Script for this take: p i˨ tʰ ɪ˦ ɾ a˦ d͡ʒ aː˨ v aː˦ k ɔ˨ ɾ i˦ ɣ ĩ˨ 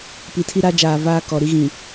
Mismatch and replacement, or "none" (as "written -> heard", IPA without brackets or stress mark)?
ɪ˦ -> i˦